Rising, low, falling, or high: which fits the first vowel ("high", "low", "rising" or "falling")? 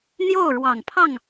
falling